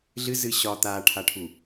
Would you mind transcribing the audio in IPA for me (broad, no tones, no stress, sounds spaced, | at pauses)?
ɮ ɨ z ɨ ɕ ɒ t̪ a ʈʰ a ʈʰ u